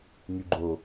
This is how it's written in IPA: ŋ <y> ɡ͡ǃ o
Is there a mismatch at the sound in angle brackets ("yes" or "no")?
no